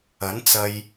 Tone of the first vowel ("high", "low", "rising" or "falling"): rising